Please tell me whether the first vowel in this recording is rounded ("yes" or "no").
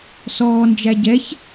yes